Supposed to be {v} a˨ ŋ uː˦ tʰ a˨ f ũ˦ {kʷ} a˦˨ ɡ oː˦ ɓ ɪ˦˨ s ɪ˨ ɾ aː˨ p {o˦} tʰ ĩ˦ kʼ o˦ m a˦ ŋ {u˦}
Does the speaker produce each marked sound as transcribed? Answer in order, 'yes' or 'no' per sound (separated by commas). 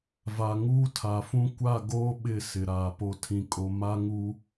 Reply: yes, yes, yes, yes